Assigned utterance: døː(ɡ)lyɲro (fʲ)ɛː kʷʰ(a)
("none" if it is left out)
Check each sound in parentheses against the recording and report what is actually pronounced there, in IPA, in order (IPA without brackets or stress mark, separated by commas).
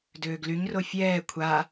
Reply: ɡ, fʲ, a